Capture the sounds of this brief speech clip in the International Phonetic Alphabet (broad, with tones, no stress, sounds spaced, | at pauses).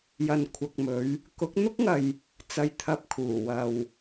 j ɐ˨ n kʷʰ ɐ˨ k̚ m ɵ˨˧ ɥ | k ʊ˨˥ k̚ n̪ ʊ˥ k̚ ŋ ɐ˨ j | t͡s ɐ˨ j t̪ʰ ɐ˨ p̚ kʰ uː˨˩ w ɐ˨ w